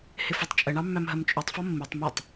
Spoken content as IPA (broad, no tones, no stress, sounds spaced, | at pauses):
h ɪ f ɒ tˤ t͡ʃʼ ə ɳ ɑ mː æ m ɦ ɜ m t͡ʃʼ u tˤ f ɒ mː i tˤ m ɔ tˤ